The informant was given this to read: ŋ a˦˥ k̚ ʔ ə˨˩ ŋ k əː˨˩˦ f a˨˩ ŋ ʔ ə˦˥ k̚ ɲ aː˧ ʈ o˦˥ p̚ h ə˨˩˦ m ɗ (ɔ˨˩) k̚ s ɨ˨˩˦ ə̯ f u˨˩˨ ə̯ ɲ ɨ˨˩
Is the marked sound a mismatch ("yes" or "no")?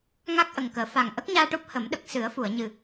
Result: yes